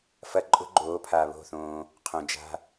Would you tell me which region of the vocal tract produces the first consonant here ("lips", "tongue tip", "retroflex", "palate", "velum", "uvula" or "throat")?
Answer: lips